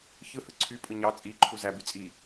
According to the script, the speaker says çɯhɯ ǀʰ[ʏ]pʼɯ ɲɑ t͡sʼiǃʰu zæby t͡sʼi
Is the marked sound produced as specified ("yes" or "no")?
no